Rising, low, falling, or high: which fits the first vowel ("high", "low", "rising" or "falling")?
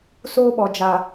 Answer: high